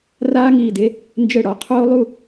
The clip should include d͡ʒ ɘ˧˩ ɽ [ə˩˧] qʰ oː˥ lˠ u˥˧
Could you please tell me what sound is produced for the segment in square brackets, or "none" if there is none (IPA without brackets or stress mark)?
ɔ˩˧